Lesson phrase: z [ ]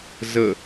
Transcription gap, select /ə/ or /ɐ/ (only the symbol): ə